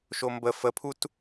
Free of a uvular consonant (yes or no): yes